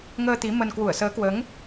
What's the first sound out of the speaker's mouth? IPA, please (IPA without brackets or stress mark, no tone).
ŋ